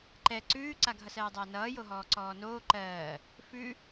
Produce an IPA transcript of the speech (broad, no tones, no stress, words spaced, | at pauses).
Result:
ǃɛ ǀʉːǀaɡʱʌsɜː dˤʌːnʌːjoɦɔː ǀɔːnoː ǃɜː | fʉ